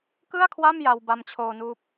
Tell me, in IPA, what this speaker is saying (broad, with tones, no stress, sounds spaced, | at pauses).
k ɯ˥˩ a̯ kʰ w a˥˩ m j a˧ w b a˧ m t͡ɕʰ oː˧ n uː˦˥ p̚